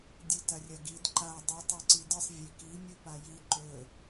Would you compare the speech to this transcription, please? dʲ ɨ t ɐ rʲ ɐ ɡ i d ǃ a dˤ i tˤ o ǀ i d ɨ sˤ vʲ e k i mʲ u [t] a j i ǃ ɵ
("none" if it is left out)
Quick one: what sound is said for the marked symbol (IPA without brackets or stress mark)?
p